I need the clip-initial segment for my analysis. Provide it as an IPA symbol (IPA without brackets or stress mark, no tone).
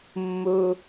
mː